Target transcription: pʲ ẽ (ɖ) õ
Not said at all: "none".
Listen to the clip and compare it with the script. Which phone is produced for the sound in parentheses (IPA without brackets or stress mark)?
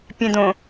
d